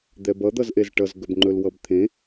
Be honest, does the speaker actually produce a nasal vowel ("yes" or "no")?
yes